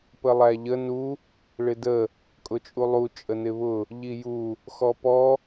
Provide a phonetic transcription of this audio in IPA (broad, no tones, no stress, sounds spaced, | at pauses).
p ə lˠ æ ʎ ə n u | ɭ ɪ d ə | kʼ ʊ t͡ʃʼ u lˠ u t͡ʃʼ ə n ɪ β ʊ | ʎ i j u | x ɔ p ɔ